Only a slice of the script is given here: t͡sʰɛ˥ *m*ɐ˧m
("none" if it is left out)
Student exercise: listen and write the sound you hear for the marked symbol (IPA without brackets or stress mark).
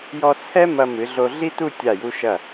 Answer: m